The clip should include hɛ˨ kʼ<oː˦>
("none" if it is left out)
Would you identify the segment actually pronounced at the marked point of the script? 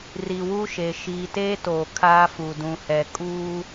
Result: uː˦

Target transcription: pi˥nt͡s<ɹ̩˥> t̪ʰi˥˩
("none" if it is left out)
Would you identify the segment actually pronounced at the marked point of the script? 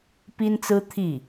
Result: ɹ̩˥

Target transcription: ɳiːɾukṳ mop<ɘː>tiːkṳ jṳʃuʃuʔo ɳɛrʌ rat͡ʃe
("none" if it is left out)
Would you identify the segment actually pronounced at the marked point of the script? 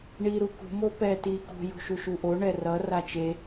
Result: ɛː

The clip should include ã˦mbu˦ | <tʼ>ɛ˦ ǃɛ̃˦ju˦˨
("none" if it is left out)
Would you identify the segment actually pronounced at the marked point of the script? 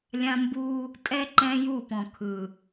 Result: tʼ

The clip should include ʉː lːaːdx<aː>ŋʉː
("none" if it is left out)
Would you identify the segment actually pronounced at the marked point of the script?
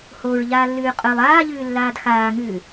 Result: aː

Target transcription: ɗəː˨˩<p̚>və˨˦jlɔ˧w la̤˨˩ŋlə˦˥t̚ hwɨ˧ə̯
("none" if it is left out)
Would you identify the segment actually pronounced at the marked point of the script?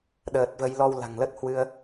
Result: t̚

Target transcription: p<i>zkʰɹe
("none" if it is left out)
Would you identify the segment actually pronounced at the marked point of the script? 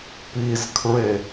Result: i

